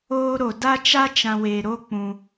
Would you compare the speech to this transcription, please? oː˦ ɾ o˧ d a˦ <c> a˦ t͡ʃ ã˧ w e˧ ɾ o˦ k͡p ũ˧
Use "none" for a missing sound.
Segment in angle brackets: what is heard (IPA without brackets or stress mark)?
t͡ʃ